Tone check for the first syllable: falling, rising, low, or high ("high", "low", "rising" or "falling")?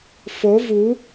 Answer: rising